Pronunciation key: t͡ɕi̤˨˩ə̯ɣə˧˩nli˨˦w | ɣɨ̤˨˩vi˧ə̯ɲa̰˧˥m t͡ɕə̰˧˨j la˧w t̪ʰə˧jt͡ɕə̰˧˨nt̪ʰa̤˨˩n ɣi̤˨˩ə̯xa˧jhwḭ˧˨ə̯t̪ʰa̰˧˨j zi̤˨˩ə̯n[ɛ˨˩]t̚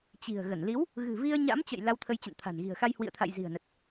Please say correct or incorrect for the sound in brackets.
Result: incorrect: ə˨˩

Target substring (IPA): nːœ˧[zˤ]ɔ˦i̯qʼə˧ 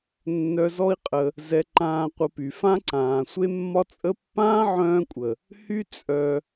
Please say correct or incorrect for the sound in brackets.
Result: incorrect: z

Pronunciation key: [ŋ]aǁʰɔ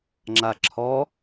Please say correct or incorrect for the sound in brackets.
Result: incorrect: ŋ͡ǁ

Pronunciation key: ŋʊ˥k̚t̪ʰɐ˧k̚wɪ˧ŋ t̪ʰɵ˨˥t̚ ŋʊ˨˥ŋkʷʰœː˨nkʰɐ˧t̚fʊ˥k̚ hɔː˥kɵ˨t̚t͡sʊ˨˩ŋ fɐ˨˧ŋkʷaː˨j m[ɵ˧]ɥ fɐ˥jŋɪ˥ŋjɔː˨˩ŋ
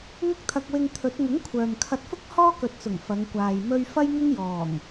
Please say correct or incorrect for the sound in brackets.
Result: correct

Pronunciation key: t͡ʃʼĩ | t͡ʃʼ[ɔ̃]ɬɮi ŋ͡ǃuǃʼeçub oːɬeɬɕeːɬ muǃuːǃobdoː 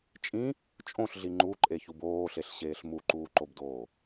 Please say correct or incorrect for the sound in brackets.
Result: incorrect: õ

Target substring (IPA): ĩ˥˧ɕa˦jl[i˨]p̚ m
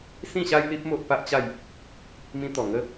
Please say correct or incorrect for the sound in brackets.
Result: incorrect: i˦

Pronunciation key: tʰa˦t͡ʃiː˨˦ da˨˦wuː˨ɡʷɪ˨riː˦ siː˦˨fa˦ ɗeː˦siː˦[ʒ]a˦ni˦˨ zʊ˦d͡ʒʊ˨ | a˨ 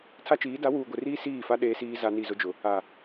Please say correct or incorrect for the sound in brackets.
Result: incorrect: z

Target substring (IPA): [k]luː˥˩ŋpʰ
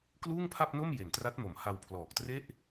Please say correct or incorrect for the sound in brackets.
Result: correct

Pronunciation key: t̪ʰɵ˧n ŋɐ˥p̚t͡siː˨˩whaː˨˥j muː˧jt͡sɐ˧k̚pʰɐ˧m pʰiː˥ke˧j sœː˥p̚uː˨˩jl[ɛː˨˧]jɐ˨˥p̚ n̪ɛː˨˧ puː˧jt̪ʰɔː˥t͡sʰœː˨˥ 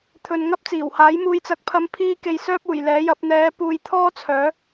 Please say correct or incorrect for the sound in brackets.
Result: incorrect: ɛː˨˥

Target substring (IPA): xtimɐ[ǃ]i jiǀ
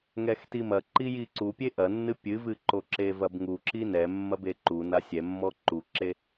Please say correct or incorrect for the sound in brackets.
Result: correct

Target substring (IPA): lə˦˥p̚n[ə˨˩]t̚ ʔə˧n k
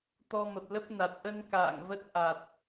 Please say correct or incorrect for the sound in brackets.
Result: incorrect: a˨˩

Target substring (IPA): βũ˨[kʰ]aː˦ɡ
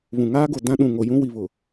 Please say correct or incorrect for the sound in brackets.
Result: incorrect: ŋ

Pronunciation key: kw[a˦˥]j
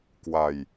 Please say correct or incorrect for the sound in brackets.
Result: incorrect: a˧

